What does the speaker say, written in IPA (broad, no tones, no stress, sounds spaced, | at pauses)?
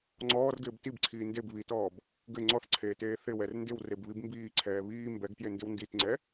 ŋ͡ǀ ɔː r ɡ ɪː b t i b ǀʰ iː n d e b β i t ɔː b | ɡ ɘ ŋ͡ǀ ɔ θ ǀʰ eː t eː θ ɪ w ɛ r n d ɪ w r e b β i b m b iː ǀʰ ɛː β iː m b ɛ ɡ t j e n d ɪ w n d i t ŋ͡ǀ ɛ